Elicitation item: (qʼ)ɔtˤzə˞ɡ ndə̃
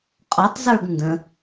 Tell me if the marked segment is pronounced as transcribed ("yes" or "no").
yes